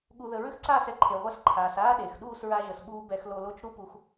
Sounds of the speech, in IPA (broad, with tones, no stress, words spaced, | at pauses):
ɠu˧ðə˧ ɹʏ˦xǀaː˦˨sɛ˦ ǃʰe˨ʁʷa˧s ǃʰaː˨saː˦ ɗe˨x ɗuː˦˨sɹa˧ʒə˨sɓuː˧ bɛ˧xlo˧lo˦t͡ʃ ɾu˦pu˧x